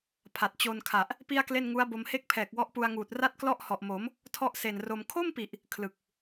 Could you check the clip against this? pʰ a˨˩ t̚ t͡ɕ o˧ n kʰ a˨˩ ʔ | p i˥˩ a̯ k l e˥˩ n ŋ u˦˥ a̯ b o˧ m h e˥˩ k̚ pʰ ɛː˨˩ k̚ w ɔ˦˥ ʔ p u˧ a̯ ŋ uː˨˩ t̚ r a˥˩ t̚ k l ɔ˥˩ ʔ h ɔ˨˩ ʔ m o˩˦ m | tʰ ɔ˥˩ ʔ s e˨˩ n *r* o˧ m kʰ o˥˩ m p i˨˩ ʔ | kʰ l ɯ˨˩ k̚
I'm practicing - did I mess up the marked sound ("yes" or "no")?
no